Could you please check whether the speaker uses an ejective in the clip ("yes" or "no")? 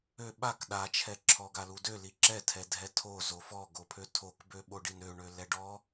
no